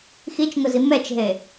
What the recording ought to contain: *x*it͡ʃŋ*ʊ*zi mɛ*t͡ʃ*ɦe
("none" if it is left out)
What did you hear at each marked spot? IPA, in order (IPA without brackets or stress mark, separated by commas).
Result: x, ʊ, t͡ʃ